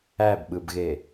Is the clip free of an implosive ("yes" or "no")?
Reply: no